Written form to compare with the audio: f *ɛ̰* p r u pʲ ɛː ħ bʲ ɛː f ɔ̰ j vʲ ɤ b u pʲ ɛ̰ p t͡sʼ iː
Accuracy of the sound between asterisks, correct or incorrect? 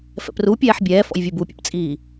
correct